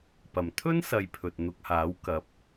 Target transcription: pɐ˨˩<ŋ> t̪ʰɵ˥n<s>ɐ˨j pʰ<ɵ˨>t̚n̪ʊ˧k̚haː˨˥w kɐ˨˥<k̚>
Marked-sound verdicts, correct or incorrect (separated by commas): incorrect, correct, correct, incorrect